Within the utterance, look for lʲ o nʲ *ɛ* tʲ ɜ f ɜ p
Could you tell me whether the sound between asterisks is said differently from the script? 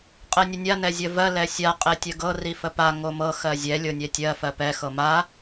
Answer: no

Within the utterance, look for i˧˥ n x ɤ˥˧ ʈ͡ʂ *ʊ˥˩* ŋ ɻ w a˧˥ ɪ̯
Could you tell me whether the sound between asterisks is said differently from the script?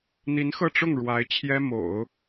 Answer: no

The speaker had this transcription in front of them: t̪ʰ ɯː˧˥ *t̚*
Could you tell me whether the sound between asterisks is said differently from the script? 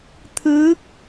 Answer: yes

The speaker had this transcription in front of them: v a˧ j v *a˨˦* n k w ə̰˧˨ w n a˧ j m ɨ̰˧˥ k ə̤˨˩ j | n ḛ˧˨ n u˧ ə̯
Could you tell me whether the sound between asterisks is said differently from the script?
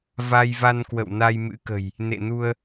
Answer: yes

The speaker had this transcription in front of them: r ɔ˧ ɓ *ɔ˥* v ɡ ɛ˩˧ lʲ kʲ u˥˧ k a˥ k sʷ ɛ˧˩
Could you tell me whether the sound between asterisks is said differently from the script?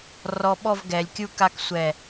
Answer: yes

